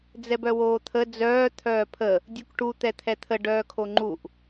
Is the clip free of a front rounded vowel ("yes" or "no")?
no